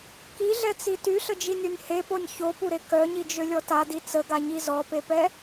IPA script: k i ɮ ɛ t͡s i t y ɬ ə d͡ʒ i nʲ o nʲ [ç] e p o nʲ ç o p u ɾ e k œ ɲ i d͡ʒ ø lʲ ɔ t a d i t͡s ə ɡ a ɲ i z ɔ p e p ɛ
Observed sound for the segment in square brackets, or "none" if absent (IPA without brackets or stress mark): h